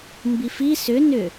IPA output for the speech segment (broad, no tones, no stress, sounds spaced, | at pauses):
m b i f i s ʏ n ʏ